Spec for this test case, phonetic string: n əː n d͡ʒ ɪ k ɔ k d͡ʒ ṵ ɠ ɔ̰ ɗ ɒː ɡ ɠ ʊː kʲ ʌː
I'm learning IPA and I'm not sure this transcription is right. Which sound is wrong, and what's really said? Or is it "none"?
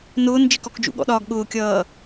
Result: əː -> ʊː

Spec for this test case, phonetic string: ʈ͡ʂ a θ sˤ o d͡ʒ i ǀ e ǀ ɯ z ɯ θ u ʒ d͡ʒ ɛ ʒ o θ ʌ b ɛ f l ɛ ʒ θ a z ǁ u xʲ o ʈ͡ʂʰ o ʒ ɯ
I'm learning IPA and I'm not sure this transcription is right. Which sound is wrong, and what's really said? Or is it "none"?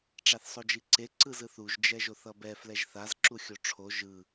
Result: none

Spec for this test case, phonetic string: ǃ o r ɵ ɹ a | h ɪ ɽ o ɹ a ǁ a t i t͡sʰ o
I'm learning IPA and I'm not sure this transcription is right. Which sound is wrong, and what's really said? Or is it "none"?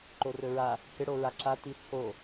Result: none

